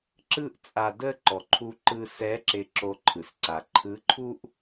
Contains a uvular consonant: no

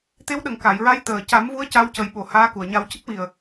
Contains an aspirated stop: no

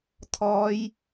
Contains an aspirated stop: yes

